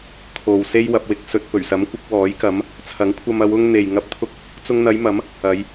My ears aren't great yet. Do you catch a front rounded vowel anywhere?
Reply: no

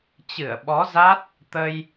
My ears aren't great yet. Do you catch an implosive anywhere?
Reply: yes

